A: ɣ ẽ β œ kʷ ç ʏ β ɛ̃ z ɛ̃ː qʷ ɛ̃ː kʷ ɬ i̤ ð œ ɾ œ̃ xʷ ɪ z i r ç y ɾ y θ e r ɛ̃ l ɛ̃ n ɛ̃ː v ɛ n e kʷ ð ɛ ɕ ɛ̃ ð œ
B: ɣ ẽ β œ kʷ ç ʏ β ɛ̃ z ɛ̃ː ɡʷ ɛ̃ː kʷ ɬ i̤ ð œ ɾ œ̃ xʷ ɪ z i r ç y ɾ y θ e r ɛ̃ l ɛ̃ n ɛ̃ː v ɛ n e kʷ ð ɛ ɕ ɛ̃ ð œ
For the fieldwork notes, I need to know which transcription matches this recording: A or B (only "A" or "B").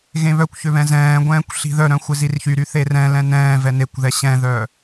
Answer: B